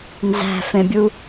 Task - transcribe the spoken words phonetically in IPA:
n z æ̤ f ẽ bʲ u

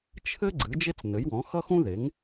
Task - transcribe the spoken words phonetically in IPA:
t͡ʃʰ ɘ˥ ɡ͡ǀ ɨ˩˥ d͡ʒ e˥ t͡s n ɘ˩˥ j w ɔ̃˩˥ x ʌ˥ x ũ˥ ð e˩˥ ŋ

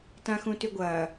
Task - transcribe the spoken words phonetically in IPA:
t ã x ũ t y ɡʷ ɐː

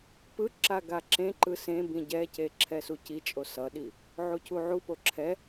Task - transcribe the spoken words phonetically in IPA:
p ɯ ǁ a ɡ a ǁ ẽ ǃ ɯ s ẽ b ĩ ɟ ɛ c e ǁʰ ɛ s u c i t͡ʃʼ o s ʌ ɗ i | ʕ u cʰ u ʕ u p o ǁʰ ɛ

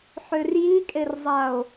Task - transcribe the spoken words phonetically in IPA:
ħ ø r j i kʼ e r zˤ a o̯

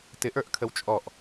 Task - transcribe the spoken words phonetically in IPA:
t ɪ ʔ ə˞ ʔ kʰ ə w t͡ʃʼ ɔ ʔ

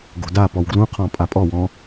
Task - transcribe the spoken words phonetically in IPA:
ɡ o̤ d a p ɔ w ɡ l ũ qʰ ɔ̃ pʼ a pʼ ɔ w ɔ̃

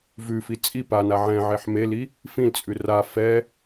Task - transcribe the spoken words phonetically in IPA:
v ʉ f i t͡sʼ i p a n a ʕ ɛ̃ ʕ e ħ m e l i | f ĩ l t͡sʼ ʉ r a f ɛ

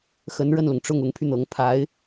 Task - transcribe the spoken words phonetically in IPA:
x ə˧˥ n ɻ ə˥˩ n l ʊ˩ ŋ ʈ͡ʂ ʊ˥˩ ŋ ʊ˧˥ ŋ pʰ y˧ n̪ ɤ˧˥ ŋ pʰ a˧˥ ɪ̯

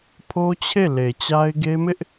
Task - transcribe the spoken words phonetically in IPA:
pʰ o˦ t͡ɕʰ e˦˨ l e˨ t͡ɕ a˦ ɪ̯ ɡ e˦ m ɪ˦ ʔ

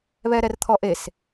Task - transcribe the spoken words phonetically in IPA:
β ɛ ɾ ɛ r t̪ʰ ɔ ʔ e s

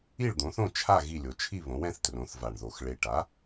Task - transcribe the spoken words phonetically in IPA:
i˥˨ ɭ d̪ õ˩˥ θ õ˥˨ t͡ʃʰ a˥˨ ɣ i˥˨ lʲ o˩˥ t͡ʃʰ i˥˨ β õ˩˥ w ɛ̃˩˥ θ t r õ˩˥ θ v a˨˩ ɳ ð o˨˩ x ɭ e˨˩ ʈ a˩˥

